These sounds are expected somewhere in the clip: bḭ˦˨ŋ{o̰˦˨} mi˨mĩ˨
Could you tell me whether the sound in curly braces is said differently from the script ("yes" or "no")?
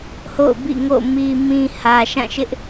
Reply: no